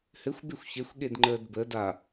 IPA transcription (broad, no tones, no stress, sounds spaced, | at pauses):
h ɘ xʷ b e xʷ ç e xʷ ɠ e d ŋ͡ǃ əː d b ə d a